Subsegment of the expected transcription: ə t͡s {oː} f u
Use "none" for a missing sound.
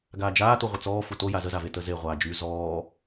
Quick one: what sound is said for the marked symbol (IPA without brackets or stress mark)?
ɔː